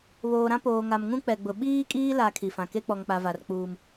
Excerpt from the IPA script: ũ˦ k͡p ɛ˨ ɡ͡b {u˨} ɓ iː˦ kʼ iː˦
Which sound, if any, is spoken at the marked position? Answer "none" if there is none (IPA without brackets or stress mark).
ʊ˨